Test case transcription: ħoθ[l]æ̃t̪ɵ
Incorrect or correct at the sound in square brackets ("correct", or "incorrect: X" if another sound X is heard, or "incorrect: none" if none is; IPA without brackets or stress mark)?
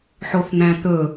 incorrect: n̪